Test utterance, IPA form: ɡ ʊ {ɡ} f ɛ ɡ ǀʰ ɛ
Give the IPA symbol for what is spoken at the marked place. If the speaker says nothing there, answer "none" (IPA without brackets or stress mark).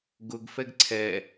ɡ